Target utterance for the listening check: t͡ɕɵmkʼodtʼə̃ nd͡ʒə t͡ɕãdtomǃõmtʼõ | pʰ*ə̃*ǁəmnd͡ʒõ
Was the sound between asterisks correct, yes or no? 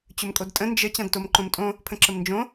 yes